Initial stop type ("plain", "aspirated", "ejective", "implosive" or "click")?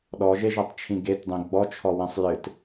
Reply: implosive